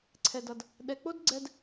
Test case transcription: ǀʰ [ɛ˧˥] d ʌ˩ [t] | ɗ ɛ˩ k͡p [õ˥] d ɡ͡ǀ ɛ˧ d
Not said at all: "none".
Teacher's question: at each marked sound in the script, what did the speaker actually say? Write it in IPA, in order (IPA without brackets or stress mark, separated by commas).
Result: ɛ˩, d, o˥